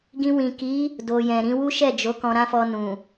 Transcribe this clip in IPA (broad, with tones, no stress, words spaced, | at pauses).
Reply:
ɡĩ˧wĩ˨ki˨˦ | do˨jɛ̃˨ ɾĩ˧wu˦ ʃɛ˦˨d͡ʒo˨˦ kɔ̃˧ɾã˦fɔ˧ nũ˨